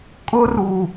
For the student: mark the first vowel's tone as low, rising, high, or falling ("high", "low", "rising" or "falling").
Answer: high